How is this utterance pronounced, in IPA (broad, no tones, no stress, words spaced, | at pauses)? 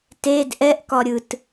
ted ʔɛʔkɒɾʲɯt